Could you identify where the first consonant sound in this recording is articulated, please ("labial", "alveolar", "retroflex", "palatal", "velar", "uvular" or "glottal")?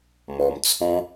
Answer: labial